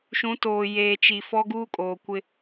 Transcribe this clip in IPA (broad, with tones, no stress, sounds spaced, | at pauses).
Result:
ʃ ũ˨˦ t oː˨ j eː˨ t͡ʃ i˨ f ɔ˦ ɡ uː˦ kʼ oː˨ kʷ ɪ˦